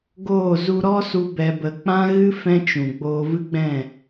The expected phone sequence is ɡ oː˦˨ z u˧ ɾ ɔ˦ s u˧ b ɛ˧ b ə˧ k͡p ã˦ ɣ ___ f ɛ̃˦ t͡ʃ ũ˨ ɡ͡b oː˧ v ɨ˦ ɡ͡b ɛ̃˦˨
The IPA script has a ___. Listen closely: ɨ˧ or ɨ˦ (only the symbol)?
ɨ˦